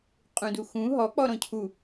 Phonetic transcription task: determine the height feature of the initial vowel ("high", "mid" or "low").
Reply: high